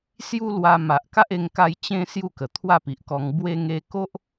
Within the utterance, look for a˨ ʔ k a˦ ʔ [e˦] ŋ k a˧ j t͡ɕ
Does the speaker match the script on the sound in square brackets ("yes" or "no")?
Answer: no